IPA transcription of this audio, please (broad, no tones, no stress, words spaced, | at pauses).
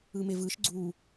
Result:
ɯmevɯʃ ɡ͡ǀu